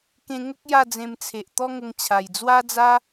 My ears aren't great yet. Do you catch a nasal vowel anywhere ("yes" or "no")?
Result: yes